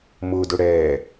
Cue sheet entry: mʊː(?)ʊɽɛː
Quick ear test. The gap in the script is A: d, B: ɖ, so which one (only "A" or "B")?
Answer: A